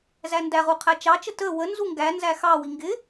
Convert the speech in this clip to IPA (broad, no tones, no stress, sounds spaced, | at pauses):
z æ n d æ ʁ u qʰ æ t͡ʃ ɑ t͡ʃ ə t ə w ə n z u ŋ ɡ æ n z æ x ɑ w i ŋ ɡ ɪ